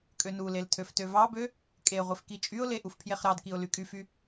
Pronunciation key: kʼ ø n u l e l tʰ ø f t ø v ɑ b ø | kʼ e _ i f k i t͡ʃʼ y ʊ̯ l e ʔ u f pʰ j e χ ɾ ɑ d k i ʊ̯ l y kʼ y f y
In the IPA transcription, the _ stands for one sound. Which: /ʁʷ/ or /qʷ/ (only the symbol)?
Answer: ʁʷ